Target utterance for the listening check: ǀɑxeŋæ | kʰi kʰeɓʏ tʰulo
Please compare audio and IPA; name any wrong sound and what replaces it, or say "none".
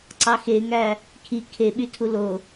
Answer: ʏ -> y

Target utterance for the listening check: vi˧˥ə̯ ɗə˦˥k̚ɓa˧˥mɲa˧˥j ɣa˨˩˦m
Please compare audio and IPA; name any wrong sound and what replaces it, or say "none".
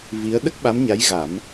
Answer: none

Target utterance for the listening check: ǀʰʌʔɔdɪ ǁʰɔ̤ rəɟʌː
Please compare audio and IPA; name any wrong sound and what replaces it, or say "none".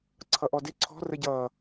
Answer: ǁʰ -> ǀʰ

